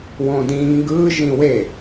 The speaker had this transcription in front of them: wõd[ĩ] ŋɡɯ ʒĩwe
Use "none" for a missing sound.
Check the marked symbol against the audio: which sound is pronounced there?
ĩ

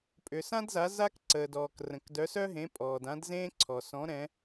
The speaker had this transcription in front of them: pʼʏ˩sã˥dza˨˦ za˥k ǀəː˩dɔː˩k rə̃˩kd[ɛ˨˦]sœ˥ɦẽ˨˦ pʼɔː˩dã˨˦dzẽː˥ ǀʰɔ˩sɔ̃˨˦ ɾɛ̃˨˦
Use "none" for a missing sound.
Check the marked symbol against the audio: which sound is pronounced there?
œ˨˦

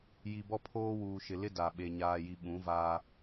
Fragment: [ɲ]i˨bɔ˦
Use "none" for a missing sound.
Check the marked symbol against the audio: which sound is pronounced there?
j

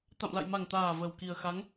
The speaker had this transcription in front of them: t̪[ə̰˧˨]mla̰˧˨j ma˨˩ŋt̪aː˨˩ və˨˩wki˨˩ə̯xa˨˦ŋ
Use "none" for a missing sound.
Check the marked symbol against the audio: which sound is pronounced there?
a̰˧˨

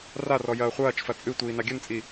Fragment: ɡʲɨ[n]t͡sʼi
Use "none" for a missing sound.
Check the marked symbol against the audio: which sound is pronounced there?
n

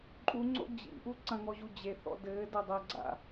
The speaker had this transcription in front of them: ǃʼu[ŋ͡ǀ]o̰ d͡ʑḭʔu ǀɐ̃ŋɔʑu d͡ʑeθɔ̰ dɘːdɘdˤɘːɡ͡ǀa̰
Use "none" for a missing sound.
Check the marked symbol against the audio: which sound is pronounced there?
ŋ͡ǀ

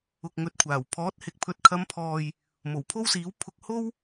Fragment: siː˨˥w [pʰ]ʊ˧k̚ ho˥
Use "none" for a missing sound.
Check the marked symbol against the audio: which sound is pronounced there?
pʰ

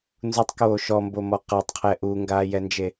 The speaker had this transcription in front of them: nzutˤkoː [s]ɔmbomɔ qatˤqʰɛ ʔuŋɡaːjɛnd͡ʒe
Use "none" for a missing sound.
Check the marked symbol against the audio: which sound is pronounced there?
ʃ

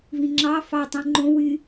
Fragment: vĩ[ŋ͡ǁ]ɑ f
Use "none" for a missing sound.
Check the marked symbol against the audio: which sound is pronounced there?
ŋ͡ǁ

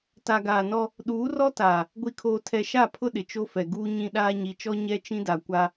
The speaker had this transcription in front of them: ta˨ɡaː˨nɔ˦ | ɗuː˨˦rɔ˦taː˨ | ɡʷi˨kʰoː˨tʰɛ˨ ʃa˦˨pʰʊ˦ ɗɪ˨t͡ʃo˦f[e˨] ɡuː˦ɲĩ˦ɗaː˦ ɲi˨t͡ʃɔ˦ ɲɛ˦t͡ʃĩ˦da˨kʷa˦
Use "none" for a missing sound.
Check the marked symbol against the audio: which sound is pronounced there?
ɛ˨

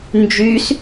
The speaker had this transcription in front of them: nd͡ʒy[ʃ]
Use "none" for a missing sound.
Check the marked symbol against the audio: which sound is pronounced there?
s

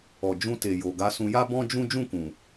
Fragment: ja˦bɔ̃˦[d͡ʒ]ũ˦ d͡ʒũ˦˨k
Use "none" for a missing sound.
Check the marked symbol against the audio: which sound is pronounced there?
d͡ʒ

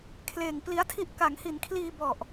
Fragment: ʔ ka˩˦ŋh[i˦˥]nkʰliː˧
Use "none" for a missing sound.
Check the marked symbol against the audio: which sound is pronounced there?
i˩˦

